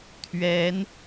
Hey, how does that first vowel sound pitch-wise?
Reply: rising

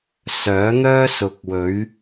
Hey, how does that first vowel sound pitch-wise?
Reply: rising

